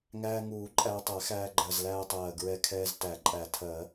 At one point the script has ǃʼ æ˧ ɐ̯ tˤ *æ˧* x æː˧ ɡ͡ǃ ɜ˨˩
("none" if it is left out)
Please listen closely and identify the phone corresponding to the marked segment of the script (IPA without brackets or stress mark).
æ˨˩˦